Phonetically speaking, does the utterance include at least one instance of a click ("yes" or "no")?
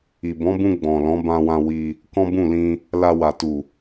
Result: no